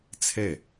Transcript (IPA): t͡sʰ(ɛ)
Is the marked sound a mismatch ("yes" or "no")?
no